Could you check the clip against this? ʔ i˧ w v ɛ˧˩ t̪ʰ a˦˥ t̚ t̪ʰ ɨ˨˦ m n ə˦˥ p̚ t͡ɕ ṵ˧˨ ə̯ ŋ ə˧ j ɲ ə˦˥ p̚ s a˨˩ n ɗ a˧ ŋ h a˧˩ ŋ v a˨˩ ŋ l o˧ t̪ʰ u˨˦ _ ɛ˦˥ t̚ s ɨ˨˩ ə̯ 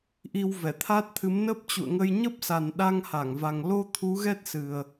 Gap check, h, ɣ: ɣ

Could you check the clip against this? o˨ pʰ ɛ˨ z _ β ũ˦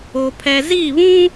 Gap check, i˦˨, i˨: i˦˨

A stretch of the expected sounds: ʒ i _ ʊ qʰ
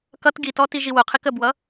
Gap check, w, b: w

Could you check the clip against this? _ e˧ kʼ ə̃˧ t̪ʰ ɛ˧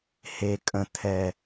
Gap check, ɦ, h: h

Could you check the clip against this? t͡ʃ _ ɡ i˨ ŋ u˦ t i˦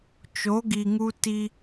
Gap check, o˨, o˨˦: o˨˦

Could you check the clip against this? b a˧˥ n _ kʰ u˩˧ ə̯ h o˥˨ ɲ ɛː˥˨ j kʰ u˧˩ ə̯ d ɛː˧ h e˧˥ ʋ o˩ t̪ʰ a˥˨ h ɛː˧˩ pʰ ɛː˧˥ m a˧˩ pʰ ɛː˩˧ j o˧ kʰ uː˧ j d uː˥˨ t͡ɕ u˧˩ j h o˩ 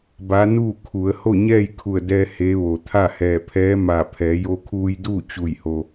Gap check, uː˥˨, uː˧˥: uː˥˨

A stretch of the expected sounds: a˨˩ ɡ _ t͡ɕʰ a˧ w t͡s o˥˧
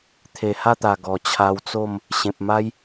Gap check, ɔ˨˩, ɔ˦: ɔ˨˩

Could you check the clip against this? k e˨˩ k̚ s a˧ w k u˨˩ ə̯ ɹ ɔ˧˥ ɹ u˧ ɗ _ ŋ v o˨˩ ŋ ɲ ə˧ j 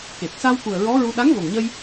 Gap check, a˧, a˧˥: a˧˥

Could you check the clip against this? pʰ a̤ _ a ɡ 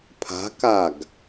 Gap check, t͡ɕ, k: k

